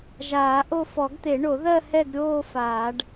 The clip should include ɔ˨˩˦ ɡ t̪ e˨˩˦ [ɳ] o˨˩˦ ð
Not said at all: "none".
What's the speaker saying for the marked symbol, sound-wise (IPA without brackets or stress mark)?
ɳ